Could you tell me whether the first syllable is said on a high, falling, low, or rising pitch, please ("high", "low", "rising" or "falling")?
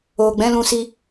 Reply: low